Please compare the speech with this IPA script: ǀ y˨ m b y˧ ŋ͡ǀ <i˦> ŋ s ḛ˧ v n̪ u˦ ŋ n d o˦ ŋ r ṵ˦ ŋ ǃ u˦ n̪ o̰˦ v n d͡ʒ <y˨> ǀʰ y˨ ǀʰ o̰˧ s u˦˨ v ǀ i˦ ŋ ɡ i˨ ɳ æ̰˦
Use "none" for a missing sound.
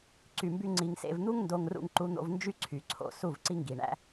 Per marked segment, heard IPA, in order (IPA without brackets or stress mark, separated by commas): i˧, y˦